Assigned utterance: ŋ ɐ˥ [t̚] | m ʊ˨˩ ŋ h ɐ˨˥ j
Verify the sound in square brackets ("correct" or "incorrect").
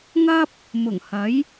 incorrect